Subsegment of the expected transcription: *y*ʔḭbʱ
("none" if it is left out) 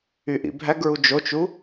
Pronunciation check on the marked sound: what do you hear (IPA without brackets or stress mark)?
y